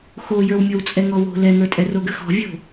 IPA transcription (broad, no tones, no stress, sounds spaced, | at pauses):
x o j ə˞ w mʲ ɔ w t͡sʼ ɛ ŋ ɔ w o̤ l ɛ ŋ ə˞ tʼ ɛ r o ɡ ə x ɔ̤ vʲ o̤